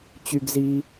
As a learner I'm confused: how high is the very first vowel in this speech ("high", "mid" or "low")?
high